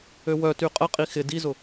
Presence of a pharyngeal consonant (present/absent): absent